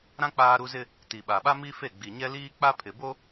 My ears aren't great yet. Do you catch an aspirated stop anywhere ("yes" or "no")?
yes